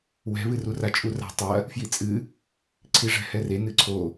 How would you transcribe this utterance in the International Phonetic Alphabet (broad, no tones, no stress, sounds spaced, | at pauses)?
w ɛ̤ β ɨ r u r a t͡ʃʼ u r a̤ tˤ ɐ | f j i t͡sʼ ɨ | ǀʰ i ʐ ɛ̤ h ɛ r e n ɨ ǀʰ o